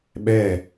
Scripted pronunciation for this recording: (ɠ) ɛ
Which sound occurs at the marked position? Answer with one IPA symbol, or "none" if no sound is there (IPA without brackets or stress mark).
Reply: ɓ